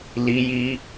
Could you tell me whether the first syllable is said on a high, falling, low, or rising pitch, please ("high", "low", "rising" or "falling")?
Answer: high